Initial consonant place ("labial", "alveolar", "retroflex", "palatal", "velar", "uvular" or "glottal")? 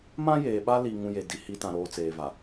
labial